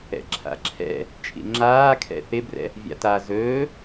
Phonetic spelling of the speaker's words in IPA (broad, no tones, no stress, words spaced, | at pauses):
ɛ̰ǁʰa̰ǁʰɛ̰ | t͡ʃʼḭŋ͡ǁaːkʰɛ̰ θɪbrɛ̰ | vʲa̰ta zɵː